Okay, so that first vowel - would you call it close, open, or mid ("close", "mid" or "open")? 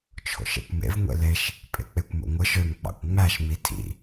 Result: mid